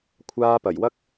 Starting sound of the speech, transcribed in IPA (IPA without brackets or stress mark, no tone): kʷʰ